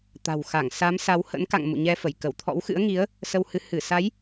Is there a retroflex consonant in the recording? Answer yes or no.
no